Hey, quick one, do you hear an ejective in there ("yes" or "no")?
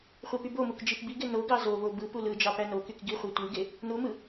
no